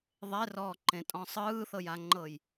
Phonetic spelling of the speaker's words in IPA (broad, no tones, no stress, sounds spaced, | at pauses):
ðˤ e r ɔː ǃ ẽ tʼ ɔ̃ sˤ ɯː θ ɤ j a ŋ͡ǃ ɤ j